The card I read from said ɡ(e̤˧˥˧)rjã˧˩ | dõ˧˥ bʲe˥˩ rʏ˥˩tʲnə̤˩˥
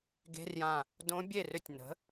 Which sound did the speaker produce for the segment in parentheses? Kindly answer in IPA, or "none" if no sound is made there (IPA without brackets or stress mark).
e̤˧˥˧